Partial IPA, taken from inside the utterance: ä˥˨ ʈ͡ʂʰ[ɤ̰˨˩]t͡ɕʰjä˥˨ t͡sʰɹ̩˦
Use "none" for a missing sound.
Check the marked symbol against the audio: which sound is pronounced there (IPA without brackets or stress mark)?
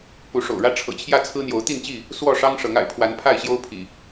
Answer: ɤ̰˨˩